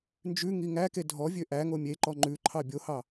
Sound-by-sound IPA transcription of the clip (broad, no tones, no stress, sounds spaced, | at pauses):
n d͡ʒ ʉ ŋ i ŋ æ k e dʱ ɔ vʲ ø ʔ æ ŋ o mʲ e ǃ ɔ ŋ͡ǃ ʉ ǃʰ ɑ bʲ o h ɑ